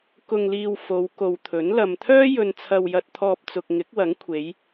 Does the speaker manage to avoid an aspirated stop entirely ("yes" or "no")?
no